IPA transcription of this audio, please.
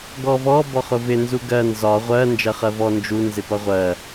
ɡɔvɔ bɔχʊvɪ nzuɡɜ nzɒ ʁʷɜ nd͡ʒɜχɜvɔ nd͡ʒu nzɪpʌʁʷɜ

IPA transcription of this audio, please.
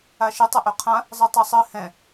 aʃɨ tˤɛʔøqʰã | zˤɯtˤɜsˤɨ hɛ̃

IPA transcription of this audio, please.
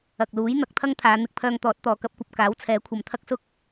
ɐ˨k̚luː˨˥j n̪ɐ˨˥k̚t̪ʰɐ˥ŋt̪ʰaː˨˧ n̪ɪ˧k̚pʰœː˧ŋt̪ɔː˨˥t̚ t̪ɔː˨kɐ˥p̚kʷɐ˨p̚ kaː˨˥wt͡sʰɛː˨˥kʷʰɐ˨mt̪ʰɐ˥k̚ sʊ˥k̚

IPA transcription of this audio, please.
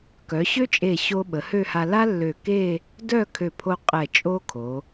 kœ˩˧ɕø˥t͡ʃʼe˧˩ɕo˧ ɓə˩˧hø˥˧ha˧ la˥lːø˧˩ke˥˧ | dœ˥˧kʰø˧˩pʰo˧ qʼɛ˧˩ t͡ʃʼo˥kʰo˩˧

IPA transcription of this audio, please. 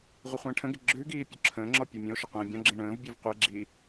ʁʷəχʷə̃ːʈʰə̃ɡɪ ɡ͡ǁʉɡiː pʲoǁʰə̃ːŋ͡ǁɔ pʲomʲə̃o̯ʃɪ qʷĩːbʲɔ̃ɡ͡ǁĩ ɳə̃ːvbʲʉv qʷəe̯ɡ͡ǁiː

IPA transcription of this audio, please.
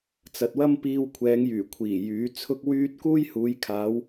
t͡sɐ˨t̚wɐ˥mpiː˧w kʷʰɛː˨˧ŋjyː˨˩kʷʰiː˨˩ jyː˨˥ t͡sʰʊ˥k̚wyː˥t̚ kuː˥jhuː˨˧jkʰaː˨˧w

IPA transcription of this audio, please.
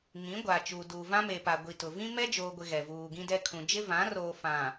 ŋĩ˨˦ɡʷaː˨t͡ʃuː˨ duː˨vã˦me˨pa˨ ɡʷi˨tʊ˨ vĩ˦mɛ˦d͡ʒoː˨ɡʷɪ˨ ɣɛ˨vuː˨ɡĩ˦dɛ˦ kʰũ˨d͡ʒɪ˦vã˨˦roː˨ fã˨

